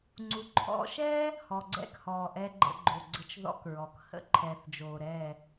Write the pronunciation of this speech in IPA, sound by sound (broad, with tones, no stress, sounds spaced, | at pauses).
ŋ͡ǀ u˨ ǃʰ ɔ̰˧ ʃ ɛ˦ | h ɔ˨ ɡ͡ǀ ɛ̰˦˨ k h ɔː˨ ʔ ɛ˧ ɡ͡ǃ ə̰˧ ɡ͡ǃ o˨ ɡ͡ǀ ə˧ t͡ʃ ð ɔ̰˦ k ɹ ɔ˨ k h ə̰˦ ǃʰ ɛː˨ θ d͡ʒ oː˨ ɾ ɛ˦˨